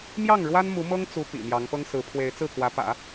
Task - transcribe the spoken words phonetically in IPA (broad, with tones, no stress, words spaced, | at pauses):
mjɑ˥˩ŋɻwa˥nmu˧˥mɤ˥ŋ t͡su˧˥ pḭ˨˩mjɑ˧˥ŋpɤ˥ŋ sɹ̩˧˥pʰwe˧˥ɪ̯t͡sɹ̩˥˩ kwä˧˥pä̰˨˩˦